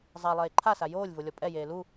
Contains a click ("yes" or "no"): yes